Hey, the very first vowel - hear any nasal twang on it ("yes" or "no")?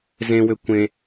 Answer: yes